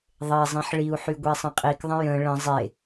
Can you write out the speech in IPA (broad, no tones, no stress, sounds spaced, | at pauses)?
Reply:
ðˤ e zˤ ĩ ħ ɭ i u̯ ħ y ɡʷ e sˤ ə̃ qʼ i k ðˤ ə̃ j ə̃ ɭ ə̃ zˤ e